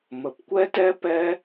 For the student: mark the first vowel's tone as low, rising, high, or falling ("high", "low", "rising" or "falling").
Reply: low